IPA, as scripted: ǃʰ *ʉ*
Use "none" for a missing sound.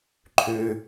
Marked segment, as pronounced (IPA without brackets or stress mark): ʉ